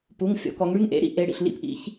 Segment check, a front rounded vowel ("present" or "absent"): present